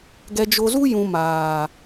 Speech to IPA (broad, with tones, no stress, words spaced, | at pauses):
ɡɛ˨d͡ʒo˨zu˦jũ˨ maː˨